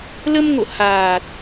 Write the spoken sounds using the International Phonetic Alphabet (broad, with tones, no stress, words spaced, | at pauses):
lə˧mŋo̰˧˨ haː˨˩t̚